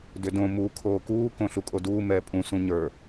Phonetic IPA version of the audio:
d ʏ d õ m u kʰ oː k uː k õ ɬ u kʼ o d uː m ɛː pʼ ũ s ũ ɲ ə˞

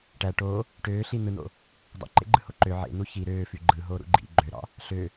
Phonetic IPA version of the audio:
ʈ æ ʈ o | ʈ øː ɬ i n̪ ɯ n̪ o̰ | dˤ o̰ ǃ ḛ ɡ͡ǃ ɯ h o ǃ ø ʕ ḛ n̪ u ç i ɾ øː f y ɡ͡ǃ ɯ ɦ oː ɾ ṵ ɡ͡ǃ ḭ ɡ͡ǃ ø ɾ ɑ̰ | ɬ ø

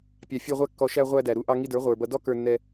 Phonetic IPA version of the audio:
pʲ ɑ˨ fʲ ɛ˧ ʁʷ æ˧ kː ɔ˨ ʃ æ˧ ʁʷ æ˧ d æ˨ ɾ u˧ ʔ ɑ˧ ŋ i˧ d ə˞˨˦ ʁʷ ə˞˨ b ʌ˧ d ɔ˦ k ə˞˧ nː ɛ˧

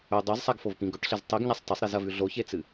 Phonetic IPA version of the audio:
ɵ dˤ o z sˤ a ɡ f o v p ĩ ɡ ɵ ʈ ɬ e z tˤ i ɡ ɲ a sˤ t ɐ sˤ ɾ i z ɐ v ʉ ɮ o ç e t͡s ɨ

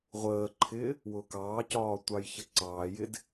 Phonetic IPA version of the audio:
ʁʷ əː ǃʰ ɪː | w ʊ k ɑː c ɒː tʷ ɑ j ç ə ǀ ɑː j ɪ d

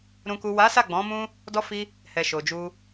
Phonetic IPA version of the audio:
ɾ ũ˨ k u˨ w a˨˦ s a˦˨ ɡ͡b ɔ̃˨˦ m ũ˦ | d ɔ˧ f i˧ | h ɛ˨ ʃ o˨ d͡ʒ u˧

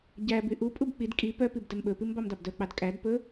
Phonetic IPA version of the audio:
ɟ æ b y ʔ u pʼ u b k͡p i d kʼ i p œ p i b d ɛ m ɓ ɵ p i m b ɑ m d ɑ b d œ k͡p ɑ d kʼ æ d p ɵ

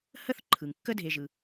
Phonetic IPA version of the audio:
h ə˥ θ ǃʰ ɯ˩ ŋ kː ə˥ dʱ e˨ ʒ ɯ˩

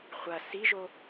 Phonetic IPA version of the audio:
χʷ ɐ s i ʒ o

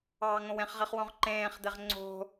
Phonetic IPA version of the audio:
ɑː ŋ õ w ẽ χ ʁ i χ w õ ʁ ǃ ẽː χ d̪ e ʁ ŋ͡ǀ o̤

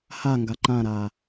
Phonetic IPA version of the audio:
h a ŋ ɡ a ǃ ã ɾ a

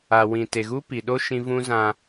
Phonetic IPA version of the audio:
a˨ w ĩ˨ t e˨ ɣ u˦ p i˨ ɗ o˦ ʃ ĩ˦ v ũ˦ z ã˦

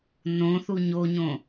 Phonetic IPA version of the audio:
n õ θ u ɲ o ɲ õ

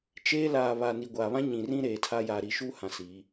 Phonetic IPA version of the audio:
t͡ʃ eː˦ l aː˨ β a˨ n i˨ ɡʷ aː˨ β ã˦ ɲ ĩ˨ r ĩ˦ ɾ eː˨ tʰ a˦ j aː˨ ɾ i˨ ʃ u˦ h ã˨ s iː˨˦

